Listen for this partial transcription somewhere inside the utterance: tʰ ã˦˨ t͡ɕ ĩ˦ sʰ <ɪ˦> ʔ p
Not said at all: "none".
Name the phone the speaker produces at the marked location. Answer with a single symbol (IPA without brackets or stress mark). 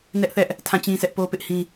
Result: ɛ˦